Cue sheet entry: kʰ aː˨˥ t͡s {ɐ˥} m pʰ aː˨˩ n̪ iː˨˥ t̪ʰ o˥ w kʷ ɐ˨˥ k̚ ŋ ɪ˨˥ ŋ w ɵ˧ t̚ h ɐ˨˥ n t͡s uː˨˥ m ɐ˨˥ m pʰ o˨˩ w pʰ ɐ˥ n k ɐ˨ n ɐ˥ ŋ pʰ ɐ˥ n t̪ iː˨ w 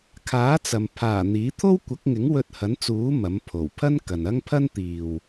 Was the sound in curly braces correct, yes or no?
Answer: no